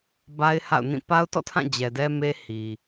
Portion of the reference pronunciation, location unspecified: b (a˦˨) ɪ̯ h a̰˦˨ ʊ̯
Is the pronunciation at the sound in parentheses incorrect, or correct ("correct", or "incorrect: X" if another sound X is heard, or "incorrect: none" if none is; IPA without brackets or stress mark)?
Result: incorrect: a˦